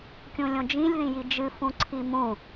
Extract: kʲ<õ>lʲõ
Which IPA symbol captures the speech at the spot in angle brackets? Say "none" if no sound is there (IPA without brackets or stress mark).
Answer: ũ